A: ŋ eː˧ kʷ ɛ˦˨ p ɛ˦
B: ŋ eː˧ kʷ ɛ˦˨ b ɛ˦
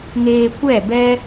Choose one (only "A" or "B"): B